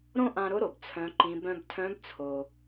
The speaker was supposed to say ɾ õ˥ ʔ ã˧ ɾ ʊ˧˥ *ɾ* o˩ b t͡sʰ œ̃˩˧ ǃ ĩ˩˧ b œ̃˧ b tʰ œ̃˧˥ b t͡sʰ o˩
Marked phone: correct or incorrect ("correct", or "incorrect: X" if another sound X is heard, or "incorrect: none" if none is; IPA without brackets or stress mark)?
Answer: correct